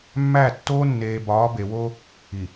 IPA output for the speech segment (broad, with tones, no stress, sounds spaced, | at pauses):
mː æ˦˨ tː oː˦ nː eː˨ b ɒː˨˦ b e˨ w o˦ | i˨